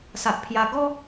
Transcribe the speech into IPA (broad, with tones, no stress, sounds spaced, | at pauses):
s a˨ ʔ pʰ j a˧ ɡ ɔ˦